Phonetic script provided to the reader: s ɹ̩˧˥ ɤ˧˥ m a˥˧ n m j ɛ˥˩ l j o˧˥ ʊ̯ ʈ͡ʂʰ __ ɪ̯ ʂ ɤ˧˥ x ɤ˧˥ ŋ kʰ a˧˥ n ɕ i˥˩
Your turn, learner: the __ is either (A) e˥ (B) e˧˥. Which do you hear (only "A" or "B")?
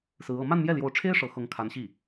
A